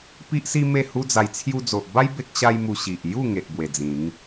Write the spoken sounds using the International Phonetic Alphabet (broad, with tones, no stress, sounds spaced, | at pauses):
p i˦ ʔ s i˦ m e˥˧ h u˦ d͡z a˧ j t͡sʰ j u˧ d͡z o˨ ʔ b a˦ j b e˦ k̚ ɕ a˦ j m u˧ ɕ i˨ ʔ j u˥˧ ŋ e˨ ʔ b w e˨˩ d͡z ĩ˨˦ ŋ